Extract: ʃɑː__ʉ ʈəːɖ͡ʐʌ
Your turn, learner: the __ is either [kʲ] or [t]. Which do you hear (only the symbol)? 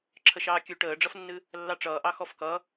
kʲ